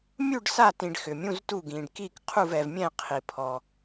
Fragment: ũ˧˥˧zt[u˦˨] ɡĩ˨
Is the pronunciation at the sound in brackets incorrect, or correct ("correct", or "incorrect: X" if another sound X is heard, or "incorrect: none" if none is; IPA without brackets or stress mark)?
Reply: correct